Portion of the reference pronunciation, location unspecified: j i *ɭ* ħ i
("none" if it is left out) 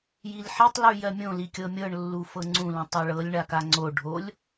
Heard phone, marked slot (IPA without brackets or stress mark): l